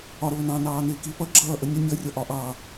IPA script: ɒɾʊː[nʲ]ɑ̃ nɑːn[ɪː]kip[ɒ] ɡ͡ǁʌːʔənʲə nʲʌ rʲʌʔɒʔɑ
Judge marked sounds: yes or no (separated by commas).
no, yes, no